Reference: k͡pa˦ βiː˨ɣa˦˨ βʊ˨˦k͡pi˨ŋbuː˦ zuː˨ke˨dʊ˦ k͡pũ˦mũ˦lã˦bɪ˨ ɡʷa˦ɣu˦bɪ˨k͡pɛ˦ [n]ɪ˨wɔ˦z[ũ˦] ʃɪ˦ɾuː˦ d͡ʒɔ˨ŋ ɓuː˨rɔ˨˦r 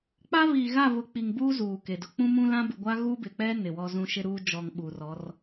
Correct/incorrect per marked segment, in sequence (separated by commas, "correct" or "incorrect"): correct, correct